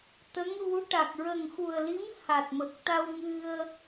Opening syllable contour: rising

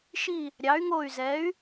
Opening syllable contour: falling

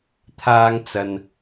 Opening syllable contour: high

